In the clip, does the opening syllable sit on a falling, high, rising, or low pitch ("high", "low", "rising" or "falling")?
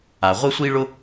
low